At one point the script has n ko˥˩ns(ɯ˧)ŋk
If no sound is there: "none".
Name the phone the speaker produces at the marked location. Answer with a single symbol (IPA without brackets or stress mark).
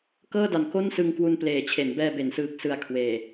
ɯ˧